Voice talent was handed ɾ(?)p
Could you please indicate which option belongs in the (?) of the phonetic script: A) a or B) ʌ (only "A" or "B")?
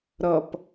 B